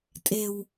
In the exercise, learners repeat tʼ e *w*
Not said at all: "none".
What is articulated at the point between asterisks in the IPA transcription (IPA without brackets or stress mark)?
w